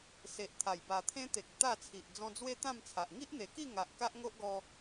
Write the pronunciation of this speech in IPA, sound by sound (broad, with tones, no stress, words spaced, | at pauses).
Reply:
se˨ʔt̪ʰa˨˩jba˨˩ t̪ʰẽ˦t̪e˨k̚ t̪a˥˧t͡sʰi˨ʔ d͡zɔ̃˧d͡zwe˦ t̪ã˥˧mt͡sʰa˨ʔ ŋi˦ʔn̪e˨˩ki˥˧ ŋa˨ʔ ka˦ʔŋo˦ʔɡɔ˧